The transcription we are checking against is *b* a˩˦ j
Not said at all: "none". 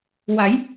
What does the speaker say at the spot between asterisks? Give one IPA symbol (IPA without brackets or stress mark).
w